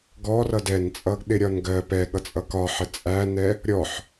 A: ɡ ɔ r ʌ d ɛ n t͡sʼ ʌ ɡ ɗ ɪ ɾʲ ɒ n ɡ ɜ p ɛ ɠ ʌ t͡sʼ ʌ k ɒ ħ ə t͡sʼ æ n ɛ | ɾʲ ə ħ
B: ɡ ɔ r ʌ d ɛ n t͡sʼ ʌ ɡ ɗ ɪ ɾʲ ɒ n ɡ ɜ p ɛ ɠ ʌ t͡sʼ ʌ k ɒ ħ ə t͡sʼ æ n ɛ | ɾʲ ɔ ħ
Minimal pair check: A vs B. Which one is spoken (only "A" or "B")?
B